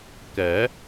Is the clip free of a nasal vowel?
yes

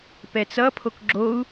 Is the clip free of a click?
no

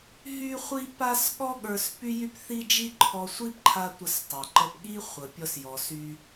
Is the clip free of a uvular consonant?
no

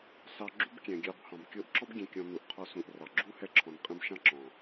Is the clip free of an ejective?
no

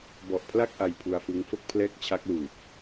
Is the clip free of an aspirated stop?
no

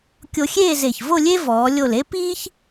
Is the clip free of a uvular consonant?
yes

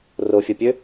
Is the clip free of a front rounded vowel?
no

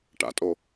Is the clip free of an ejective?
no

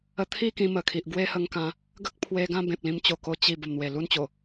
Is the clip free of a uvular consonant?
yes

